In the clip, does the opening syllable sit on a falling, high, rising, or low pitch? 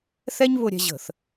high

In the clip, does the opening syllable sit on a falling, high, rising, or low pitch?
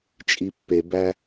low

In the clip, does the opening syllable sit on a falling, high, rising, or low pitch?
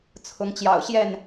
rising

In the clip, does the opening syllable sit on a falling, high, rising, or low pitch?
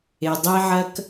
low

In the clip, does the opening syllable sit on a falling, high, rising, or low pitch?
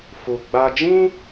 low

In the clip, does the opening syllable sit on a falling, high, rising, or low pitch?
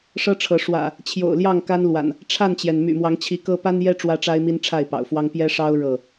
high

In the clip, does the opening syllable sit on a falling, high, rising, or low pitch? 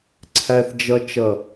low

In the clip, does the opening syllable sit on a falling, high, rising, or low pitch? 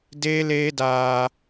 high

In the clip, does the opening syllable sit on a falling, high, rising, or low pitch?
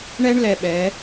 high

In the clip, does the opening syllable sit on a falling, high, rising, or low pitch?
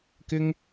high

